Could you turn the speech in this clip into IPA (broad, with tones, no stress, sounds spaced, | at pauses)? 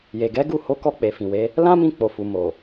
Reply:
j e˨ ɡ ɛ˨˦ ɡ u˦˨ h o˨˦ k ɔ˧ k͡p e˨ f ĩ˨ w e˨˦ | l ã˦ m ĩ˧ k͡p o˨ f u˨ m o˨